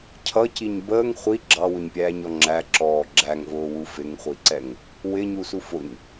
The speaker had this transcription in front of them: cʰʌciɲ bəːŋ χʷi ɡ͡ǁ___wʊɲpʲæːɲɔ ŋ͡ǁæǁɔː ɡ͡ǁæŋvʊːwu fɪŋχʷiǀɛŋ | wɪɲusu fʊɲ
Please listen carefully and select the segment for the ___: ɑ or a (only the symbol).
ɑ